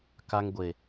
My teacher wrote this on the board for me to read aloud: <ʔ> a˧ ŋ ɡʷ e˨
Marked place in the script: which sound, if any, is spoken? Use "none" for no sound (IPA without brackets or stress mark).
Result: k